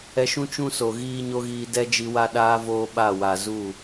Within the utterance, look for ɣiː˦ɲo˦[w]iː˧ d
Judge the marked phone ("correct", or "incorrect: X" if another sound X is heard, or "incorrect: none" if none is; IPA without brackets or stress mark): incorrect: ɣ